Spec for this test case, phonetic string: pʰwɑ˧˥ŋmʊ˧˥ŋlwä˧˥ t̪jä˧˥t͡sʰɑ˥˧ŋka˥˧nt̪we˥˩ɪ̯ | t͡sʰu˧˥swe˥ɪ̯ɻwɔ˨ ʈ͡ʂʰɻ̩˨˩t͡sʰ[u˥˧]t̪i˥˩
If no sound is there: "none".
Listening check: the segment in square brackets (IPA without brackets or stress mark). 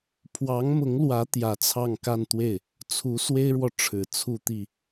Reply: u˥˧